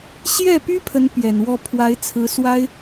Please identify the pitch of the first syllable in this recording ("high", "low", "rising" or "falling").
falling